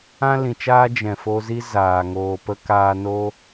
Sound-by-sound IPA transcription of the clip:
ã˦ lĩ˨t͡ʃaː˦ d͡ʒɛ̃˨fo˧zi˦ zaː˨ ŋoː˨pə˧ kaː˧ no˦

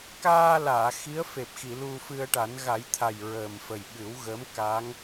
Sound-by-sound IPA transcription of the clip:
kaː˧laː˨˩˨ xi˧˥ə̯fe˨˩p̚xi˨˩˨ lu˧fɨ˧ə̯ʈa˨˩˦n ɣa˨˩˦jt̪ʰa˨˩j ɹəː˨˩mfə˨˩j ɓɨ˨˩˦wɣə˧˥m ka˧˥ŋ

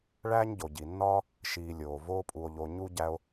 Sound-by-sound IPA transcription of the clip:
ɭæː˥ɲɟo˩ɟi˩nːɒː˥ | ʃiː˨lʲoː˩ voː˦pʼu˨o̯ʎo˨ ɲu˥ɟæ˦o̯

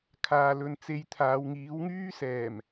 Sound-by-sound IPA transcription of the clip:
kʰaː˨lɵ˨n t͡se˧jt̪ʰaː˨˧wŋiː˨˥wŋyː˥ sɛː˨˩m

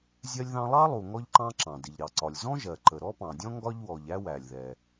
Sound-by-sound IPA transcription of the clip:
zʲɜ˥lʲðɑ̃˥ lˠɑ˥lˠu˩ ŋɔ˥ʎǃɑ̃˥ǁɑ̃˩ dɪ˩ʎɾɑ˩ǀɒ˩lʲ zɔ̃˥ʒɜ˩ ǃə˩ɾɔ˥pɑ̃˩dʲɔ̃˥ ŋɡɒ˥ʎwɔ˩ʎæ˥ wæ˩lʲðɛ˩

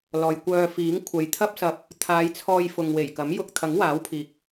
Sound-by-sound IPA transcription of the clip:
lɔː˨jkʷœː˧fiː˨˥ŋ kʷʰɐ˨jt̪ʰɐ˥p̚sɐ˧p̚ | t̪ʰaː˨˧jt͡sʰɔː˧j fʊ˨ŋwe˨˩jkɐ˨˥mjʊ˧k̚ t̪ʰɐ˨˥ŋwaː˨˥wpʰiː˨k̚

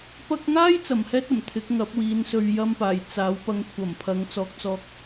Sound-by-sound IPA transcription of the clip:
pɐ˧k̚ŋaː˥j t͡sɐ˨˩mhɛː˥t̚ɐ˨˩m t̪ʰɪ˨˥k̚ŋɐ˨˥p̚wiː˨˧nsɵ˧ɥ jɐ˥mpaː˨˩j t͡saː˨˥wpɐ˧ŋ kʷʰɐ˨˩m pʰɐ˨˧ŋt͡sɔː˨k̚t͡sɔː˧k̚

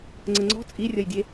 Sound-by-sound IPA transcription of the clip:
ŋ͡ǀəŋ͡ǀɔ̤ t͡sʼirʲʌjdʲe

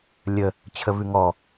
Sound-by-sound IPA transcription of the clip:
lʲə | t͡ɕʰəvʉŋɔ

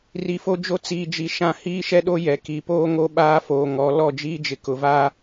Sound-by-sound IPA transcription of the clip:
ri˨fo˦d͡ʒo˦ t͡siː˨d͡ʒi˨ ʃã˦ hiː˦ʃɛ˦ɗo˦ jɛ˨ ki˨poː˦ŋo˦ ɓaː˦foː˨ ŋɔ˨˦ lɔ˦˨d͡ʒiː˦ d͡ʒɪ˨kʊ˨vaː˦

